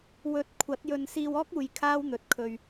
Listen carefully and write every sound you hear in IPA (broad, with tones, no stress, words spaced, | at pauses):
wɵ˨˥t̚ kʷʰɐ˨˥t̚jɵ˧n siː˧wɔː˥k̚uː˨j kʰaː˥wn̪ɵ˨˥t̚kʰɵ˧ɥ